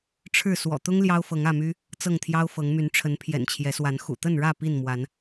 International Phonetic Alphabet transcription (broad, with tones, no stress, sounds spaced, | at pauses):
ʈ͡ʂʰ ɻ̩˥˨ s w ɔ̰˨˩ t̪ ʊ˦ ŋ l j ɑ˦ ʊ̯ f ɤ˨˦ ŋ ä˥˨ m y˦ | t͡s ɤ˥˨ ŋ t̪ʰ j ɑ˦ ʊ̯ f ɤ˨˦ ŋ m y˨˦ n ʈ͡ʂʰ ə˨˦ n pʰ j ɛ̰˨˩ n t͡ɕʰ j ɛ˨˦ s w a˨˦ n x ṵ˨˩ t̪ ə˥˨ n ɻ ä˥˨ p i˥˨ n m w a˨˦ n